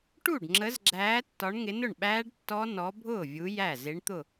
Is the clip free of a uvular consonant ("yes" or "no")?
yes